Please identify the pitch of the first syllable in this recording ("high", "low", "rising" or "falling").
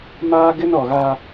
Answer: high